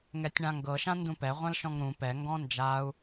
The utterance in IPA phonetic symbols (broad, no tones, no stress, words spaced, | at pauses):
ŋɛtʲɳãŋɡɤ ʃãndũpɛ ʁʷãlʃɔ̃ŋɾũ pɛ ŋɡɔ̃nd͡ʒau̯